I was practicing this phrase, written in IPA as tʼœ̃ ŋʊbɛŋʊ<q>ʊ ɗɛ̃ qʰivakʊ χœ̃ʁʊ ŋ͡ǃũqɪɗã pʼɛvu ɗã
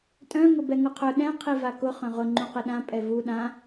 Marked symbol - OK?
no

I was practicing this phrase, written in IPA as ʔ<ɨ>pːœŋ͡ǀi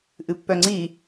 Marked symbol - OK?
yes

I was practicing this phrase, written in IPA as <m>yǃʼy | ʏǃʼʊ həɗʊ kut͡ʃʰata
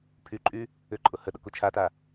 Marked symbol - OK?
no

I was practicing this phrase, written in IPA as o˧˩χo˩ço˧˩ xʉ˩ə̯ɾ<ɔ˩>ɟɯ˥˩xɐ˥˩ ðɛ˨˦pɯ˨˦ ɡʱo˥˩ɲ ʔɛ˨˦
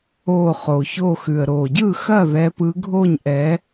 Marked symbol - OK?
no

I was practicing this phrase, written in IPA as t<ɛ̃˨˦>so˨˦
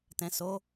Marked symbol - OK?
no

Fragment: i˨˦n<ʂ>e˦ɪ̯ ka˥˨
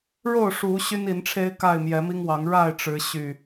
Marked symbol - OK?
no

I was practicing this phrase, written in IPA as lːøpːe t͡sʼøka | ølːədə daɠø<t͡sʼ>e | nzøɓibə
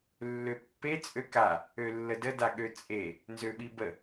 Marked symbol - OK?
yes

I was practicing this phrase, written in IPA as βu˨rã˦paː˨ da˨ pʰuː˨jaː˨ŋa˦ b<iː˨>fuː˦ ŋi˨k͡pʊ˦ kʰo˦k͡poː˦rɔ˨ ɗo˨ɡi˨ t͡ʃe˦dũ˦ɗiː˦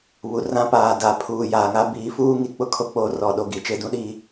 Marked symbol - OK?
no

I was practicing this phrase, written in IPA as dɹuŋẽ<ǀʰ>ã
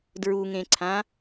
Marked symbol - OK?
yes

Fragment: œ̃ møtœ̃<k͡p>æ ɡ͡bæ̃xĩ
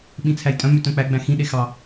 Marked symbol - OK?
yes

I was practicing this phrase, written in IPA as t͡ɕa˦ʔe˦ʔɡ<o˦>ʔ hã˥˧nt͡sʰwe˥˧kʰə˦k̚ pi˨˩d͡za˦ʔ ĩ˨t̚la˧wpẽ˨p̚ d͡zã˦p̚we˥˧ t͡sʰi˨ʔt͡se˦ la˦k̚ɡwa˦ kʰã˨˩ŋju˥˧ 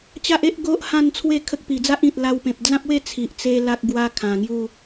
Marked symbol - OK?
yes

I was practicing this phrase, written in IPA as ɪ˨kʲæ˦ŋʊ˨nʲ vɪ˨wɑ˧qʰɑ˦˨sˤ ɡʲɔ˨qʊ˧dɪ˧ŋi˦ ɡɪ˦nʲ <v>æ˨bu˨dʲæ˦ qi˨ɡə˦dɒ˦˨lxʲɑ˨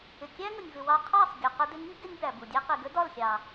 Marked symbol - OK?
no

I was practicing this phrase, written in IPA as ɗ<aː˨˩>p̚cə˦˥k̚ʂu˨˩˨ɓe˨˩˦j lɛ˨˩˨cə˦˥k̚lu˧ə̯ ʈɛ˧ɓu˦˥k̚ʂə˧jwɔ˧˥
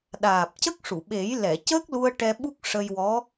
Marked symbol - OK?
yes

